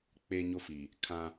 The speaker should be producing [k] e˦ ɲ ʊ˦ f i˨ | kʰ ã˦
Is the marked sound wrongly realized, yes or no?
yes